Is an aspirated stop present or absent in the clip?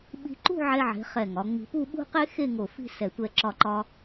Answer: absent